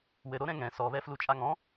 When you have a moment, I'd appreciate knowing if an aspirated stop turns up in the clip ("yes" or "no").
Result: no